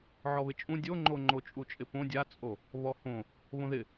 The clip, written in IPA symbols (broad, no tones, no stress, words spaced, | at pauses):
ʕɔβɪt͡ʃʼũ dʲoŋ͡ǃo ŋ͡ǃot͡ʃʼut͡ʃʼɪpõ dʲat͡sʼo | βɔhõ | βõðɪ